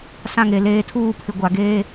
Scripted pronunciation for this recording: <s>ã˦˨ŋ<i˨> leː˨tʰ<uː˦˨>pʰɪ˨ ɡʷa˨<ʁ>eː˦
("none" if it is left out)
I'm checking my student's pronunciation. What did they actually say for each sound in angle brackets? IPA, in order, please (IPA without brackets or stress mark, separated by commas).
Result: s, e˨, uː˦˨, ɡ